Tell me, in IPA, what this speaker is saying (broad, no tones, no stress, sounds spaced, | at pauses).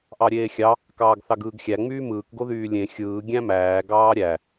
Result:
ʔ ɑ ɾʲ eː xʲ ɑ | k ɑː ɡ θ ɑ ɡ ɯː ɡ xʲ æ ŋ͡m yː m ɯː k ɡ o ð yː lʲ ẽ xʲ ɯː ɡʲ æ̃ m æː ɡ ɑː ɾʲ æ